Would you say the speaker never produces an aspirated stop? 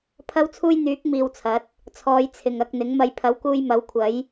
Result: no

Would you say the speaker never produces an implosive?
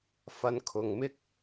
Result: yes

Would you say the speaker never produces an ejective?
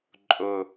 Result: no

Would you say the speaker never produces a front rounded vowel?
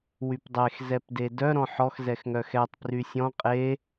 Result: no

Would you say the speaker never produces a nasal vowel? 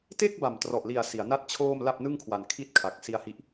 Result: yes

